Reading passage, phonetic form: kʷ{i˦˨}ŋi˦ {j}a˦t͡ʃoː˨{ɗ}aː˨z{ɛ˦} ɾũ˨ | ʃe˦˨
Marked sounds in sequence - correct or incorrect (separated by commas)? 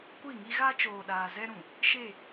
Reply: correct, incorrect, correct, correct